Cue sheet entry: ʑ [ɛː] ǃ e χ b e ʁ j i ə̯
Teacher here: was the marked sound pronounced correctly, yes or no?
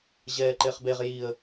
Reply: yes